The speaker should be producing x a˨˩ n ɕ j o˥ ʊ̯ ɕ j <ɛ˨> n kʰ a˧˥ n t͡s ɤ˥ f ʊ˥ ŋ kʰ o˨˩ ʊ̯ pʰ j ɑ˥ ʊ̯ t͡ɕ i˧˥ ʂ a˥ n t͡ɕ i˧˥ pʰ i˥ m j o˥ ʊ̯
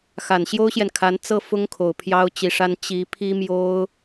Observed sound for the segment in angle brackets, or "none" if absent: ɛ˨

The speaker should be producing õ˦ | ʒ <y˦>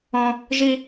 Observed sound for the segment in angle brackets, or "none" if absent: i˦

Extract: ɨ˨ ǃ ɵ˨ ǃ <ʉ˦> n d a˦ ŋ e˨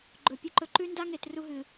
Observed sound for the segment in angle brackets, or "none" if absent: ʉ˦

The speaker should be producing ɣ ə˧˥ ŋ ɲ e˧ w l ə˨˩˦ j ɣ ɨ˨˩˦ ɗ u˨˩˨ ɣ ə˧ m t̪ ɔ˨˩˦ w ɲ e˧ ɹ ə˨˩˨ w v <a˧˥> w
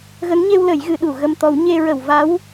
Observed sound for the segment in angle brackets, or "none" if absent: a˧˥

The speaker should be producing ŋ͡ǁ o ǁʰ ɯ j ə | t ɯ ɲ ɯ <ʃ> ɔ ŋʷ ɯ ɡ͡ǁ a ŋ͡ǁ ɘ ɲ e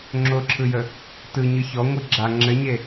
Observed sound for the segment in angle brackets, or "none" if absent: ç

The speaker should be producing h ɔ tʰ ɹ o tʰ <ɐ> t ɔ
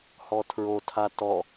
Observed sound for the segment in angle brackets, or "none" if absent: a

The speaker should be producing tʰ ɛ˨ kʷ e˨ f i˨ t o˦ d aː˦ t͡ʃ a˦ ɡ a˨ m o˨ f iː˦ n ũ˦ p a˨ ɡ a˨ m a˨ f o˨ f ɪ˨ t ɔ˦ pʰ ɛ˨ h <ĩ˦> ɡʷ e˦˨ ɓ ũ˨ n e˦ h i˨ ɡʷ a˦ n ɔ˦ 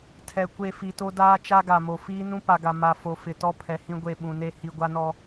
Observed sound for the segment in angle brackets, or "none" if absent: ĩ˦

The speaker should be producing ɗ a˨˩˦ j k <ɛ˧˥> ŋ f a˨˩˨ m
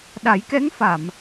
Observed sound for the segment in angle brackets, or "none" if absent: ɛ˧˥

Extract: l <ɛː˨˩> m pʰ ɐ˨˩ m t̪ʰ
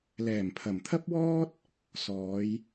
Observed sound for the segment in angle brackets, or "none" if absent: ɛː˨˩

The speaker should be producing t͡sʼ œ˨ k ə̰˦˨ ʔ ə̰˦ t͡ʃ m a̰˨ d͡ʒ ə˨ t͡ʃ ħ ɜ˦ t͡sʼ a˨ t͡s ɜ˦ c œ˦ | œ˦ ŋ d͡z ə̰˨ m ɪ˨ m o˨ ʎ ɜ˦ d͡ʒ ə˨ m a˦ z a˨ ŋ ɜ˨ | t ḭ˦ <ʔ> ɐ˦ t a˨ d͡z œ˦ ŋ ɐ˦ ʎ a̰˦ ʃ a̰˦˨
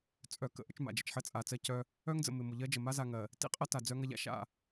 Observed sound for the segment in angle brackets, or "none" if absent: qʼ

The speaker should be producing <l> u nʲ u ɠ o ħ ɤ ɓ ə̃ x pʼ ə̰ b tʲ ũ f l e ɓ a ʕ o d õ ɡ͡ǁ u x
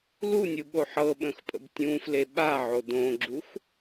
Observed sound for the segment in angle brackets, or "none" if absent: l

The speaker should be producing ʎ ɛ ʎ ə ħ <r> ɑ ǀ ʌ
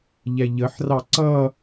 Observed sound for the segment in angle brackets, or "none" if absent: r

